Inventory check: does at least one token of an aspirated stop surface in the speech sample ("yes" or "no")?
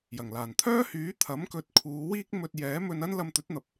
yes